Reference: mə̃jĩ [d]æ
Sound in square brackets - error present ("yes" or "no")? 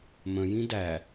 no